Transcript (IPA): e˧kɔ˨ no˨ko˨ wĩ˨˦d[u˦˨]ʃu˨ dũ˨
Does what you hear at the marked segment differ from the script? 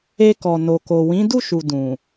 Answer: no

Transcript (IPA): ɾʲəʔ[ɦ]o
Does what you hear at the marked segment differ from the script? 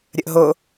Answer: no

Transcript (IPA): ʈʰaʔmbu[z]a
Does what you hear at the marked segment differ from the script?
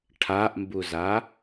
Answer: no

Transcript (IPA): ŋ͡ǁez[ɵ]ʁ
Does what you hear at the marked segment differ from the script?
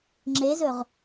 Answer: no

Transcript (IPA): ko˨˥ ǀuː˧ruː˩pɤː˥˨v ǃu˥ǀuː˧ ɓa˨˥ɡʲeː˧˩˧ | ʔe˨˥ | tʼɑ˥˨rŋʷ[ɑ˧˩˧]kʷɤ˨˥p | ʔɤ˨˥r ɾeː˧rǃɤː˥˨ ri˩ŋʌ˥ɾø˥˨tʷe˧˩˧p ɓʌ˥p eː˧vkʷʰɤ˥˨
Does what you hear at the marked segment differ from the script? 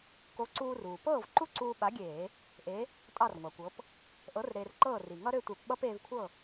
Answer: yes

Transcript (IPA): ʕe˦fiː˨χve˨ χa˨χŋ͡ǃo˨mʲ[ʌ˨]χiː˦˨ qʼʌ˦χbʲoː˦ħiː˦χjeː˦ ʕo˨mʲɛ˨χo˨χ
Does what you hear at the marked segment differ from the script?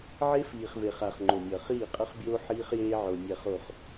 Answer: no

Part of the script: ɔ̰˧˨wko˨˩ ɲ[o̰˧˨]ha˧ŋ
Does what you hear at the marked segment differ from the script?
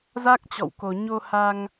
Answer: yes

